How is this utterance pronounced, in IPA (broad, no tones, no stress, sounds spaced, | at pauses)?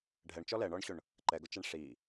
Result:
ɖʱ ɛ ɳ t͡ʃ ɔ l ɛ ɳ ɔ ɳ ɕ ʊ ɳ | ǃ ɛ ɡ ʊ t͡ʃ ɛ ɳ ʂ i